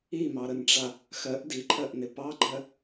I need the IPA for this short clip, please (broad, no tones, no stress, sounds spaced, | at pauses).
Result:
i m ɑ ɾ ə n ʈ͡ʂ a | x ɜ ʔ d i ǃʰ ɜ ʔ n ɪ p ɑ ɡ͡ǃ ɜ